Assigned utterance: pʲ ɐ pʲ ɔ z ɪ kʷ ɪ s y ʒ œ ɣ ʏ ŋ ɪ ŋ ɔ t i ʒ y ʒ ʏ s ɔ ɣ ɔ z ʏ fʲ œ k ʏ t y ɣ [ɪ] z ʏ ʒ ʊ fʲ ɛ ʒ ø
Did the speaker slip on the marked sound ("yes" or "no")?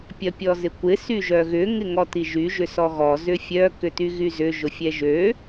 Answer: yes